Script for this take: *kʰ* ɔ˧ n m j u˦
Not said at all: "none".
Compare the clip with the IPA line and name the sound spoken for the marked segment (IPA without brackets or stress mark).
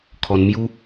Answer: kʰ